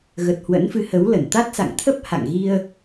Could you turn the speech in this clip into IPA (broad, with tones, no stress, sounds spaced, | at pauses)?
ɣ ə˨˩ t̚ h w ə̰˧˥ n f ɨ˨˦ h ə˨˦ w l ə˧˩ n t̪ a˦˥ t̚ s a̰˧˨ ŋ t̪ʰ ə˦˥ p̚ h a̰˧˨ ŋ ɣ i˧ ə̯